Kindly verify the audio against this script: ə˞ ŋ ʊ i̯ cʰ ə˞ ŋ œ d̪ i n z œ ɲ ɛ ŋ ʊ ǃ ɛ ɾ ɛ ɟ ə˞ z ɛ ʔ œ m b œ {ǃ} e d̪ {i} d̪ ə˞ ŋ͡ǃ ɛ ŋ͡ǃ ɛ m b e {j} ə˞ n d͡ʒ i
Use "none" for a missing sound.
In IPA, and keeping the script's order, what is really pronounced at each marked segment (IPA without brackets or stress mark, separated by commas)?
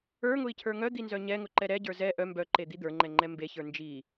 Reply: ǃ, i, ç